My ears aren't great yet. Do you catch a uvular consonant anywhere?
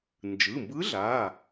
no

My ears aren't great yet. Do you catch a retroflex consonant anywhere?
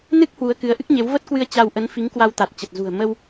no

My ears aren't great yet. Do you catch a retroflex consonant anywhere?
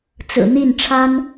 yes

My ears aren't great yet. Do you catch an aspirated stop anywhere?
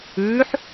no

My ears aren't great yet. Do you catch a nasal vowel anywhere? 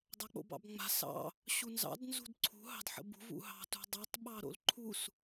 no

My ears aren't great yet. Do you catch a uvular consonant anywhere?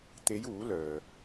no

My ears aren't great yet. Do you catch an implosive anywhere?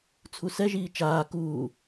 no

